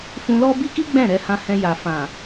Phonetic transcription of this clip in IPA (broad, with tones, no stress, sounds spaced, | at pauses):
f ũ˧ l ɔ˦ b i˦ k i˦ ɡ͡b ɛ̃˦˨ ɾ ɛ˧ h ã˧ h ɛ̃˧ j a˨ f ã˨